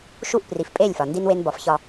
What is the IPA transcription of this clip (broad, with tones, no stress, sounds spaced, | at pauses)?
ʃ u˦˨ ʔ p r i˨ f pʼ e˦˨ lʲ f ɒ˨ n d i˦ n w e˦ n b ɒ˨˦ f ç ɒ˦